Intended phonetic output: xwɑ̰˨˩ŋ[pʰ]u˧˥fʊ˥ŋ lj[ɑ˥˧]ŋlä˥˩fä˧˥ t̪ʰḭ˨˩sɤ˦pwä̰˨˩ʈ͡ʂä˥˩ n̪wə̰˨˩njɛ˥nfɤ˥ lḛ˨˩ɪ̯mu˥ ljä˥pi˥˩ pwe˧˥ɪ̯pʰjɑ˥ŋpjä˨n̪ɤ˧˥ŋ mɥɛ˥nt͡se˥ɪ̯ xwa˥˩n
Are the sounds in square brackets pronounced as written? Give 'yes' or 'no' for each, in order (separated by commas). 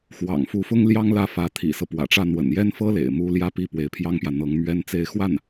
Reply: no, no